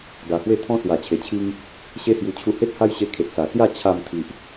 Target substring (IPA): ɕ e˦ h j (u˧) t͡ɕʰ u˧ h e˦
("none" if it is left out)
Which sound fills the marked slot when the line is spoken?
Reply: u˧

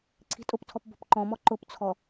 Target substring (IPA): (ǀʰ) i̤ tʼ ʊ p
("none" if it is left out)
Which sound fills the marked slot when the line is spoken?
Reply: ǀʰ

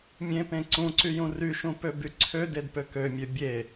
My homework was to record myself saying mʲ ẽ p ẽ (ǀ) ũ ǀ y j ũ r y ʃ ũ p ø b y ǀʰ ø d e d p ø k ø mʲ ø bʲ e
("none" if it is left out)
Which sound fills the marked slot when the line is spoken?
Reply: ǀ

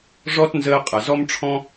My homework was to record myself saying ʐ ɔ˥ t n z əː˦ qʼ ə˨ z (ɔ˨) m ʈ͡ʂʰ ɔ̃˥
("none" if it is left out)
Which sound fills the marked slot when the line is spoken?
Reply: ɔ˥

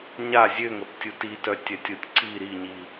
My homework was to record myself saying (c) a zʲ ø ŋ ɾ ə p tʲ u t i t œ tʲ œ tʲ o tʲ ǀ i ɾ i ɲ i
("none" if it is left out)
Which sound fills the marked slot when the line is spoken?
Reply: ɲ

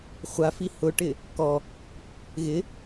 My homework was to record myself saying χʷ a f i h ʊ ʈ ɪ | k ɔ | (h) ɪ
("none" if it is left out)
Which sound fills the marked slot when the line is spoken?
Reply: ɣ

